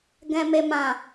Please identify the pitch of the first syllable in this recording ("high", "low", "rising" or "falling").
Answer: low